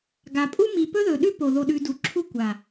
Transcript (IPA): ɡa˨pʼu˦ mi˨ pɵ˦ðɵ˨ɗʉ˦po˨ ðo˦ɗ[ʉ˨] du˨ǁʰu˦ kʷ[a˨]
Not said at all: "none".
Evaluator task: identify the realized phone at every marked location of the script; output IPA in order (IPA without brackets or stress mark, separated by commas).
ʉ˦, a˨